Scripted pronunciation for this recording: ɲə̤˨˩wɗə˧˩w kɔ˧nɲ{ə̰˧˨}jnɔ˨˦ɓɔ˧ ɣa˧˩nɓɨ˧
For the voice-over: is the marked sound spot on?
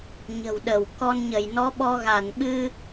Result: no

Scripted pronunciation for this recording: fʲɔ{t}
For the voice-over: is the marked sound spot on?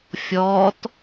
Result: yes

